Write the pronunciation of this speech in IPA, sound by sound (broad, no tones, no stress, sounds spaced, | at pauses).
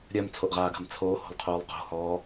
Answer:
ɾʲ œ m t͡sʰ o ʔ ʁ aː ɡ a̤ m t͡sʰ oː h o̤ lˠ qʰ oː lˠ q o̤ h ɔː